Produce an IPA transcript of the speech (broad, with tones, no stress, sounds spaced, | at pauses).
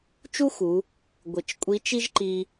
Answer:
t͡ʃ u˥ x u˩˧ | ɡʷ ɪ˩˧ t͡ʃ kʷʼ i˧˥ t͡ʃ i˥ ʒ ǃ i˧